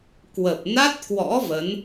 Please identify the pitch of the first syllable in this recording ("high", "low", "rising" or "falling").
low